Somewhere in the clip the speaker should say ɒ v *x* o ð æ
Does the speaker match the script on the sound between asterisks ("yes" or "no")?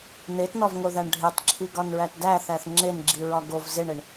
no